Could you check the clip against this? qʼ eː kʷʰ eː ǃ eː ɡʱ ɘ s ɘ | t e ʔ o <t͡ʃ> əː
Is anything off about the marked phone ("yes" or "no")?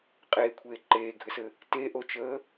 no